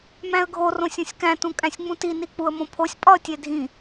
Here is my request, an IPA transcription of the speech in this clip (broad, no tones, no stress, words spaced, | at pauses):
mæ̃ə̯ɡʱo rõsʲõsʲkæ̃ tũkʼæ̃sʲŋ͡mũti nik͡puə̯mõpʰosʲ pʼɒə̯tʲedʱĩ